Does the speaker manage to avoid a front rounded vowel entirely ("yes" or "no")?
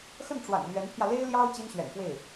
yes